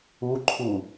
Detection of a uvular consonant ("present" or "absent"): absent